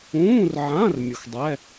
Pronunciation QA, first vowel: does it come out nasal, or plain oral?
nasal